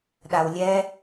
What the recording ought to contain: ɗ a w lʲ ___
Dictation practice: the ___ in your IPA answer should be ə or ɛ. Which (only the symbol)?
ɛ